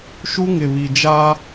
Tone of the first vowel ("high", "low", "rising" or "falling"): high